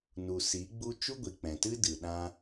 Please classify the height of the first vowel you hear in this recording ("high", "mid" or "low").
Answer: high